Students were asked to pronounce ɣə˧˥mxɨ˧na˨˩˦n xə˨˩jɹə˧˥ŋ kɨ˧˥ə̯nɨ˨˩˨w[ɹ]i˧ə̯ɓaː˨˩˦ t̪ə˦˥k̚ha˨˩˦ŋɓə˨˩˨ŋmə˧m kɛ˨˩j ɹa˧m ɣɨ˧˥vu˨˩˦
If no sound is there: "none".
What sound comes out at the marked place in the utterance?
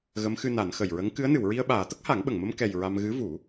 ɹ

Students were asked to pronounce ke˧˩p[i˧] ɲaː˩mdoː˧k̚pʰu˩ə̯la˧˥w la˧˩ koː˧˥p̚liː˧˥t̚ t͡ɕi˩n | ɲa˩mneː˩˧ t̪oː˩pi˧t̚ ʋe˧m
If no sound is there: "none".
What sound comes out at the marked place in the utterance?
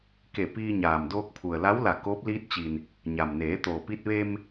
iː˧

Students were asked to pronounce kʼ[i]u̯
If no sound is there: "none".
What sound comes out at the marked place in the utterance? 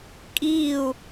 i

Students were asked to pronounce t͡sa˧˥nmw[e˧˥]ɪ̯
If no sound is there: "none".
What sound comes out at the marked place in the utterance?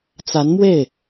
e˥˩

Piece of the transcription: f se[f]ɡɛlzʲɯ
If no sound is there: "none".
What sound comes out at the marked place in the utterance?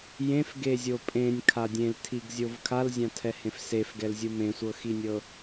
f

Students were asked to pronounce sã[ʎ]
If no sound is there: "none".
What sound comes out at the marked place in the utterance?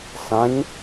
ɲ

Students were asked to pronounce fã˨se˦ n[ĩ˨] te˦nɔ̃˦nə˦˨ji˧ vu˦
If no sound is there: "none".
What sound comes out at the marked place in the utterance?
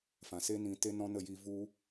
ĩ˨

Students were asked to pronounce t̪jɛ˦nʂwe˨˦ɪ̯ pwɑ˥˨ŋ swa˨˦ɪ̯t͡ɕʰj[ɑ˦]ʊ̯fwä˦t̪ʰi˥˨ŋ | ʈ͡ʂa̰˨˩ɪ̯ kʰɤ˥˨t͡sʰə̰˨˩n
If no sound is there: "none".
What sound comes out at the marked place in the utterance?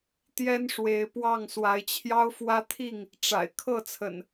ɑ˦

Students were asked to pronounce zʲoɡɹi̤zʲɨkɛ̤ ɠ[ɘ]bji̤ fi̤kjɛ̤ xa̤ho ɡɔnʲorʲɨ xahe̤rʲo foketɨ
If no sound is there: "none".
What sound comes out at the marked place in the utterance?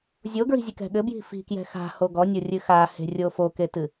ɘ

